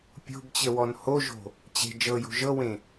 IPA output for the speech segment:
pʲo̤bt͡ɕəwɔn hoʒo̤ | t͡ɕe̤ d͡ʒɤjo̤ ʒɤwẽ

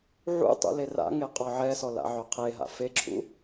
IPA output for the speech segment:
ʕṵtˤṵ lera̰ŋe qʼɔʕɛsɔ la̰ʕœqʰeɦa̰ feǁʰṵ

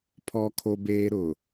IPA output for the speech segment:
pʰɔ˦kʰo˦beː˦ ɾʊ˨

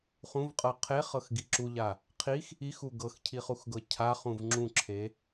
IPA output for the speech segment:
χũvqʼɤ qʰe χɤxɡiǁuʎa | qʰix | ixu ɡɤxcʰiχuxɡɤ cʰaχũv ŋ͡ǁũǁʰe

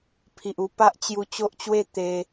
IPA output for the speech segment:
pʰi˨ʔu˧ pa˦ʔt͡ɕju˧ t͡ɕo˦ʔt͡ɕwe˥˧ t̪e˧

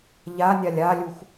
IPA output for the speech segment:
ʎanʲalʲ alʲux

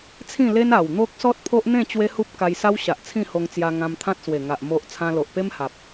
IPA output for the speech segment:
t͡sʰĩ˥˧le˦n a˨˩wn̪o˦k̚ sɔ˦t̚pʰo˦ʔn̪ẽ˥˧ t͡ɕwe˦hu˦p̚ ka˧jsa˦w ɕa˨ʔt͡sʰĩ˥˧ho˧ŋt͡sja˧ ŋã˧mt̪ʰã˦t̚swe˨˩ŋa˨ʔ mo˨ʔ t͡sʰã˧lo˨ʔpe˦m ha˨p̚

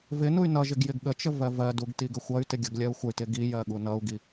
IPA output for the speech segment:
vɪnuy̯ nʌʒɪɡ jɪɡɠət͡ʃə vɜvɜduɡ tiɡəxʷʌy̯tɪ ɡʲʌɡlʲɜu̯xʷəy̯tɪ ɡijɜ ɠunʌu̯ɡi

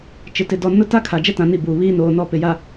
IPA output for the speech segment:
t͡ʃɪ˨tɪ˨dɔ˨ nʊ˦ta˦kʰa˨ d͡ʒɛ˦tã˨ ni˦˨buː˨βiː˦ noː˨nɔ˦˨pɪ˨ja˨

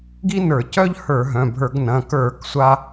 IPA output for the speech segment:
ɡi˥nə˞˧˩˧cœ˥ʎhə˞˧˩˧ ɦœ̃˩˧˩bʱə˞˧˩˧ɡnɐ̃˩˧˩ kə˞˧˩˧k sʷa˥

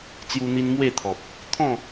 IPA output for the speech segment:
t͡sju˧n̪i˧n mwe˥˧t̪ʰɔ˨p̚ | t̪ʰɔ̃˥˧

